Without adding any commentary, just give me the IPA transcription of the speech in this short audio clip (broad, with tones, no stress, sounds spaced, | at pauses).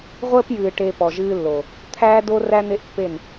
ʁʷ əː˦ p j ɨː˨ ʈ e˨ p ɔ˨ ʒ ɨː˦ lː o˨ | t̪ʰ æː˦ d o˦ r æ˦ n̪ e˦ ʔ pː e˦˨ n